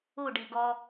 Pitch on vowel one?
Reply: falling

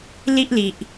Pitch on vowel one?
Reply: high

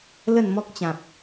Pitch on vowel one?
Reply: falling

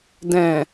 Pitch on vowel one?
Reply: low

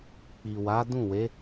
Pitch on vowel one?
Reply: low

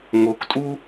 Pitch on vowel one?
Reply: rising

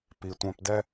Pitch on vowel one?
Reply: low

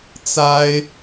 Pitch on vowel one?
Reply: high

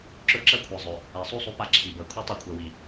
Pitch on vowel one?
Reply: high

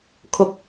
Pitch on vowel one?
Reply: low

